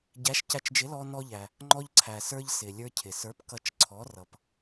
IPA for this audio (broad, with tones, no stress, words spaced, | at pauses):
ɟæ˨˥ʃcæ˧t͡ʃd͡ʒɪ˨˥ lɔ˧nɔ˧ʎæ˩ | ŋ͡ǃɔ˧ʎǀʰæ˩sə˞˧ʎ sɪ˩ lʲə˞˧cʰɪ˩sə˞˨˥p kʌ˧t͡ʃǀʰɔ˨˥ rʌ˩p